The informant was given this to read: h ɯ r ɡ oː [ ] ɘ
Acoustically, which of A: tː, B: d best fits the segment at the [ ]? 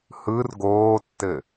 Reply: A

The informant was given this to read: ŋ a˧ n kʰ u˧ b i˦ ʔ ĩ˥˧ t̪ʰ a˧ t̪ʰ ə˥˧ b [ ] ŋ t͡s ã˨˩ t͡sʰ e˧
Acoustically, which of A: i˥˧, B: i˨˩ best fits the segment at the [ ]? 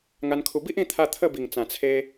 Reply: B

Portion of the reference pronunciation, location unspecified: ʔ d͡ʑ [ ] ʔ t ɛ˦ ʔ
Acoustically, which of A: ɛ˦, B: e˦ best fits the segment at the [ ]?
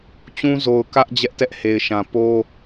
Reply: A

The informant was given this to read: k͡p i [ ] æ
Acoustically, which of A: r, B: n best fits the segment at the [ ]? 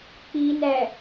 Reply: B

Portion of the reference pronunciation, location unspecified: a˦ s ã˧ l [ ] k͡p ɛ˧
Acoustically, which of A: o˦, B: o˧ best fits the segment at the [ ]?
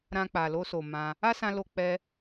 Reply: B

